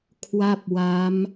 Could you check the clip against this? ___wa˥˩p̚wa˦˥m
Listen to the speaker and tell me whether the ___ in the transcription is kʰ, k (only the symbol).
kʰ